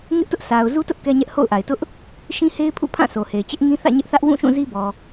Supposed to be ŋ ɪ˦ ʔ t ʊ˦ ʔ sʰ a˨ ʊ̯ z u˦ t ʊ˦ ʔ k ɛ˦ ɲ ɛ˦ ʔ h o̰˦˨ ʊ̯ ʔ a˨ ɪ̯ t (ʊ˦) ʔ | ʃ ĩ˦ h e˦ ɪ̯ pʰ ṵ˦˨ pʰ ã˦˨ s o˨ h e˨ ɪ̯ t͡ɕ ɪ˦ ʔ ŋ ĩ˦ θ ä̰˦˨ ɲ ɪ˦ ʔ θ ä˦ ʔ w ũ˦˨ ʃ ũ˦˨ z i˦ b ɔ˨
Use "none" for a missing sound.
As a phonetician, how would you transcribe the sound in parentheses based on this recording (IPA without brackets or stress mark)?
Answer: ʊ˦